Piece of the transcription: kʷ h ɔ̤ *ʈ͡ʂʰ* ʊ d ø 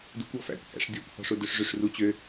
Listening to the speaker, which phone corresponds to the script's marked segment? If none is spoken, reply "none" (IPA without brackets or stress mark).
ʂ